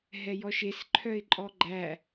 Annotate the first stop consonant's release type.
click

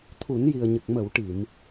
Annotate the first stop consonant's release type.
aspirated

